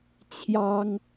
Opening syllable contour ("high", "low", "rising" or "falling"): high